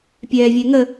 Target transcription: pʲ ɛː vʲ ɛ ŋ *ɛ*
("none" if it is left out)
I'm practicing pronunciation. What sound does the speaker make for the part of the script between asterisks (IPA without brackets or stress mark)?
ə